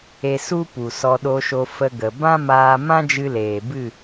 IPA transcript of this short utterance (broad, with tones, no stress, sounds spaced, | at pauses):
e˧ s u˦ p u˨ s ɔ˧ ɗ o˧ ʃ o˧ f ə˧ ɡ ə˨ b ã˦ m aː˧ m ã˦ d͡ʒ ɨ˧ l eː˨ b ɨ˦˨